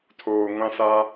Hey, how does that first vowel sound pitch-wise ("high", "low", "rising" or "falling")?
low